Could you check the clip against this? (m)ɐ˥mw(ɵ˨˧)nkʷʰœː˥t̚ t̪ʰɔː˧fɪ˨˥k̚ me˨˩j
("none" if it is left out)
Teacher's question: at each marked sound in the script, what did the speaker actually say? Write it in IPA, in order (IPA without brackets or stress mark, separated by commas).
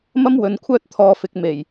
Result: m, ɵ˨˧